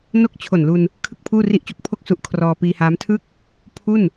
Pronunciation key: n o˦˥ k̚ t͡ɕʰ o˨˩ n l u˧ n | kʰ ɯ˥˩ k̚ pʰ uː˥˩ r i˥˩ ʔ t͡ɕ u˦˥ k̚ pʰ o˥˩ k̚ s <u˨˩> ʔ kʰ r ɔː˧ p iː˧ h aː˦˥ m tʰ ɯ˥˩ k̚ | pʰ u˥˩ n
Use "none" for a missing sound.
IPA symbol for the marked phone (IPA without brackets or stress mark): u˦˥